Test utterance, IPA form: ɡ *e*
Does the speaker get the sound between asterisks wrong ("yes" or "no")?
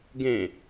yes